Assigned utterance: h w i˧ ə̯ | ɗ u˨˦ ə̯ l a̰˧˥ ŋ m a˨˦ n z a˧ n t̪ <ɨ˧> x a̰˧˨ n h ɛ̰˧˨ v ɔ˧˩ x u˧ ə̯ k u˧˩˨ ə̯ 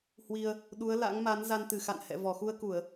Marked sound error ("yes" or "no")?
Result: yes